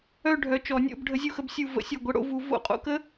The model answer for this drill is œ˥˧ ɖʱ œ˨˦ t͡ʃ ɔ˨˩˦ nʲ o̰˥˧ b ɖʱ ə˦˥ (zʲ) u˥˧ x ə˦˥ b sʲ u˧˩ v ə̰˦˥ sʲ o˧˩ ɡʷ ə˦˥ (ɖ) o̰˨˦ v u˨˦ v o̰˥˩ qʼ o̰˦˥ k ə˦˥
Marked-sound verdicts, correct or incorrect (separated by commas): correct, incorrect